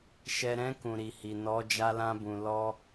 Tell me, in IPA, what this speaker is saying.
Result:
ʃ ɛ˨ ɾ ɛ̃˧ k ũ˨ ɾ i˨ h i˨ n ɔ˨˦ d͡ʒ a˧ l ã˧ b ũ˨ l ɔ˧

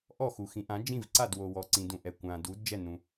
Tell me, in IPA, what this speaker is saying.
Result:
ʔ ɔ˥˩ x u˩ x ĩ˩˥ ʔ ã˩˥ d͡ʒ ĩ˥˩ v ǀ a˥˩ d w o˩ w ɔ˩ ǀ ĩ˩ d ũ˩ ʔ ɛ˩ kʷ ã˩ d u˩˥ d d͡ʒ ɛ˥˩ n ũ˩

